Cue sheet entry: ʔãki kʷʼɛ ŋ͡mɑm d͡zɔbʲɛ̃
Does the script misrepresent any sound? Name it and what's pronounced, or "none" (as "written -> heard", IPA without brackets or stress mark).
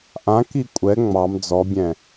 none